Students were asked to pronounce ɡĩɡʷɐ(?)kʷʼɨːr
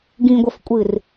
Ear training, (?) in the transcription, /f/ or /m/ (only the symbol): f